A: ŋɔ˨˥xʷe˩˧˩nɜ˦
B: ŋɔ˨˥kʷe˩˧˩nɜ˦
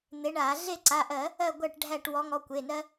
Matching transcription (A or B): B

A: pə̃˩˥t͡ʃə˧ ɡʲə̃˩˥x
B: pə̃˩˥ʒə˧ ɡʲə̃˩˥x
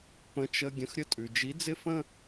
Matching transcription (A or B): A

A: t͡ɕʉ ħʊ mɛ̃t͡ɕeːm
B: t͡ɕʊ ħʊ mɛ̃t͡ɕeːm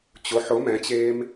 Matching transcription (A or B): B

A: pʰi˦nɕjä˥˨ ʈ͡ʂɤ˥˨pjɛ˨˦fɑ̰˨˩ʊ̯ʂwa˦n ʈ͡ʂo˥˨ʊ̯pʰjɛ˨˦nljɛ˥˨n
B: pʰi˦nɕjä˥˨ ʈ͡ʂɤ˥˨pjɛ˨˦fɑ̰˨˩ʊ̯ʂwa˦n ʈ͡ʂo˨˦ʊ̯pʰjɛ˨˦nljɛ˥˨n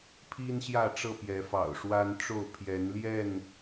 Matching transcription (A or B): A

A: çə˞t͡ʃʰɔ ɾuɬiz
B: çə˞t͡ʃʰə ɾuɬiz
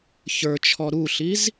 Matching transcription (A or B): A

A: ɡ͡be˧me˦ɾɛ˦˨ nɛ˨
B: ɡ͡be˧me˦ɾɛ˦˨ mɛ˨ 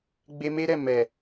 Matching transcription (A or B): B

